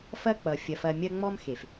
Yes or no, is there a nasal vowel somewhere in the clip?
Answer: no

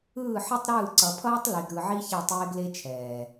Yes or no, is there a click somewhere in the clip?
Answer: yes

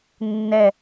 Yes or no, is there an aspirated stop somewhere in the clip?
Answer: no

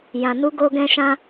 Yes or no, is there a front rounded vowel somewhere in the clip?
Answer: no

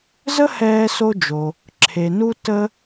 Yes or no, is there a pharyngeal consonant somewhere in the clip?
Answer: no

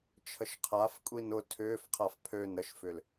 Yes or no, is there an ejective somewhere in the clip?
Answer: yes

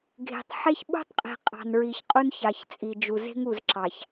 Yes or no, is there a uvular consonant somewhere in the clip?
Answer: yes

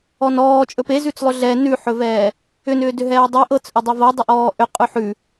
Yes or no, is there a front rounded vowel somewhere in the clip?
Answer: yes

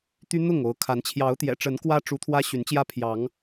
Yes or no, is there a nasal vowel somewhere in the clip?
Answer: no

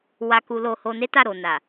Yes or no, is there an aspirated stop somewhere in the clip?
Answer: no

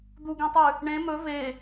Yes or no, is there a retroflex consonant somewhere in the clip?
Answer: yes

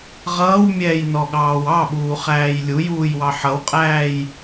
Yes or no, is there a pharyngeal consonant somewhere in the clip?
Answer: yes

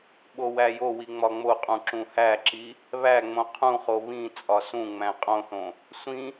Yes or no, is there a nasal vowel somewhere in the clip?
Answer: yes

